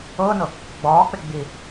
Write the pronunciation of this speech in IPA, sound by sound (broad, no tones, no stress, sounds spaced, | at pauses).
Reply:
ʊː n ʊ | ɡ͡b ɒː k͡p ɪ ɡ͡b i